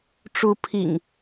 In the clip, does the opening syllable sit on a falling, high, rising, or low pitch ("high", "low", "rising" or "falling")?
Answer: rising